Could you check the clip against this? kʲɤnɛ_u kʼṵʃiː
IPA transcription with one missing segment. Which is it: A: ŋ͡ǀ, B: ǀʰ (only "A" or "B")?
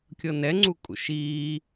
A